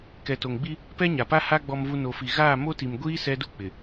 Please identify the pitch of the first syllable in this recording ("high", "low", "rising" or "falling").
low